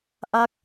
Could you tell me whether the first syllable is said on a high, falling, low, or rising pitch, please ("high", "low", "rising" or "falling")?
falling